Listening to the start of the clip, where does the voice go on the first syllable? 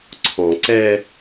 low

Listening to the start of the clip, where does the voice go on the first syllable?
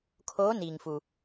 rising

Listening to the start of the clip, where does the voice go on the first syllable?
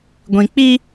low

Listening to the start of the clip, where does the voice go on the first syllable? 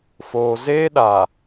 low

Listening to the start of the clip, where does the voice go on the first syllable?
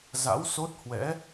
rising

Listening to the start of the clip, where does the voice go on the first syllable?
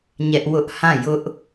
high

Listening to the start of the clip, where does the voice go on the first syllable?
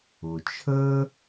low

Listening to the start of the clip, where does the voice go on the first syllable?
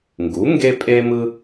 rising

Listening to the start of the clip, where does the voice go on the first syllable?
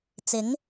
rising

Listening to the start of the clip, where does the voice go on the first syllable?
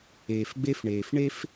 low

